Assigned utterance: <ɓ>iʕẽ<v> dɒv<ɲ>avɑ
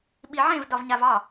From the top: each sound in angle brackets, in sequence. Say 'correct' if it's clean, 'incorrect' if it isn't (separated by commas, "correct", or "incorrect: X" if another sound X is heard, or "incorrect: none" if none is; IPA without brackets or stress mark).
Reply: correct, correct, correct